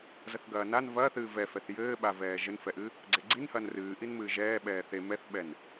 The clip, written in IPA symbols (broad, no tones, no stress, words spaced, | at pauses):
zɐθɡɐːnan vɐːθɨː vɛfɛθ jɘːɓavɛː ʒɘnfɛʔɨ | ɡ͡ǀeɡ͡ǀinhɐːn rɨːʔin mɨːʒɛː ɓɛːθe mɛθɓɛn